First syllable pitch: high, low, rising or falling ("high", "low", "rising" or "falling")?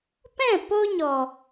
falling